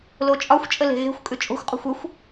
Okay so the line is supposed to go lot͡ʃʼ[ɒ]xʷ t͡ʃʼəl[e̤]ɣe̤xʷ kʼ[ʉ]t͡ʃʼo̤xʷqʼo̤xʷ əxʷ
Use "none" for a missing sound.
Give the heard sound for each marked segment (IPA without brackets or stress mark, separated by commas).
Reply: ɒ, e̤, ʉ